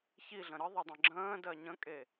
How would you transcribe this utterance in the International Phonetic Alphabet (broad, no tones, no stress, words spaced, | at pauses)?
çiɮə̃ ɾəðˤədˤə̃ ɡ͡ǁə̃ːdɜ ɲə̃kʼe